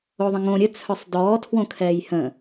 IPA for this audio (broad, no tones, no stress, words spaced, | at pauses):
oðˤə̃ŋõ ɾʲə t͡sʰœsˤdɔː tʰwõkʰɛːjhə̃